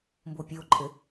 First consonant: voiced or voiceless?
voiced